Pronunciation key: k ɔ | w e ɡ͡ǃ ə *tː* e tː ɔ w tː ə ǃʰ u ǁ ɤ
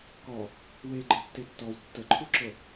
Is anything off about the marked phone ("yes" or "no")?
no